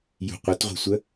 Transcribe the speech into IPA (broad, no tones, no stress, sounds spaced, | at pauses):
j ṳ qʷ ə t ʁʷ e̤ sʷ ə